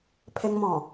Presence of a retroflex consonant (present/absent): absent